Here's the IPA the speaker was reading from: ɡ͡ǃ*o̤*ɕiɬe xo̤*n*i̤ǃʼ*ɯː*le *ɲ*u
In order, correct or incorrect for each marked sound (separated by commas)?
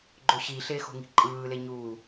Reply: incorrect, incorrect, correct, correct